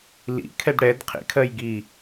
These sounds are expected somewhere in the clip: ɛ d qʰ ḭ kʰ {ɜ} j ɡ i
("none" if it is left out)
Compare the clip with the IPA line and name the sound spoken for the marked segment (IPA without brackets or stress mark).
ɜ